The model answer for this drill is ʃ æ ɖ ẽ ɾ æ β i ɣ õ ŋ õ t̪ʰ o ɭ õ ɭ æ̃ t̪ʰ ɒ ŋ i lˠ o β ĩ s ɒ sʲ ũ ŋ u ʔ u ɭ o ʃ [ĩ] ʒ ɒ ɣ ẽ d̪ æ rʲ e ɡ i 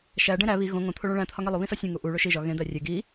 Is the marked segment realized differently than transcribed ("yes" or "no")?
yes